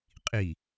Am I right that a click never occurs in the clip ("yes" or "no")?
yes